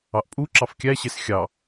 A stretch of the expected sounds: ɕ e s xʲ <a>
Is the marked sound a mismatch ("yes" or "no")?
yes